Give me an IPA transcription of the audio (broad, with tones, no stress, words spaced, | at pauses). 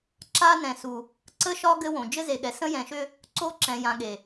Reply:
ǁa˦nɛ̃˨su˨ | ǀə˦ʃɒ˦ ɡɘ˦wõ˨ d͡ʒɘ˦ze˨ɠɛ˨sə̃˦ jɛ̃˨ʃʏ˦ | ǀo˦ǁɛ̃˨jã˨ ɠe˨